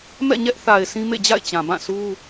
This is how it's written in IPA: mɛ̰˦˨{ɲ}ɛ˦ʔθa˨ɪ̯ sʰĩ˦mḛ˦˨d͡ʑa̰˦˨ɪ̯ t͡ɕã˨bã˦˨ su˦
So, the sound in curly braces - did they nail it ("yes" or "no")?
yes